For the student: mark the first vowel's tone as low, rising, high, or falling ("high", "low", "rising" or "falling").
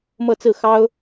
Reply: falling